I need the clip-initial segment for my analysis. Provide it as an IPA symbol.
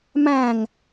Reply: m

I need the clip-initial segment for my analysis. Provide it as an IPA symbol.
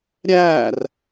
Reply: ɾʲ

